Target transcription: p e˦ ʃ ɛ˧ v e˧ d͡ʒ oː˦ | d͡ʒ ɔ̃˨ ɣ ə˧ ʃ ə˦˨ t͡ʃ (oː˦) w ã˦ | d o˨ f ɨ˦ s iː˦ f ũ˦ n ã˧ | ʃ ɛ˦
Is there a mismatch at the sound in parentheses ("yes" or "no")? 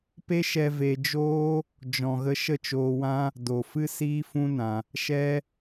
yes